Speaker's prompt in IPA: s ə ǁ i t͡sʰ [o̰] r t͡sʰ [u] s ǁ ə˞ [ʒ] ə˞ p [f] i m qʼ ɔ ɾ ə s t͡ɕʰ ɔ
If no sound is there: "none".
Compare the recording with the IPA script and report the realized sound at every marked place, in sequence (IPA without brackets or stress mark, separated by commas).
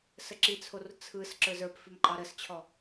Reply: o, ɯ, z, f